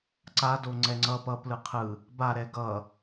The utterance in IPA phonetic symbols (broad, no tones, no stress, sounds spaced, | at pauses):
ǀ a d o ŋ͡ǀ ɛ ŋ͡ǀ ʌ p ʌ p l ɯ qʰ ɯ | b a ɾ ɛ ɡ ʌ